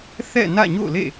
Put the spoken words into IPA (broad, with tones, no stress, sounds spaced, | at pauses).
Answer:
θ ɛ̰˦˨ n ä̰˦˨ ɲ o̰˦˨ ʊ̯ l ḛ˦˨